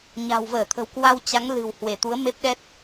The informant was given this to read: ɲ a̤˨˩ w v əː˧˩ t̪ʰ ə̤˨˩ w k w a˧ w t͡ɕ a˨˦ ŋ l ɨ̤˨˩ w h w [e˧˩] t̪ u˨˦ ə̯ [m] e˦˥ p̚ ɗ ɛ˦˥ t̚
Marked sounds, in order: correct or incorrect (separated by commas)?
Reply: correct, correct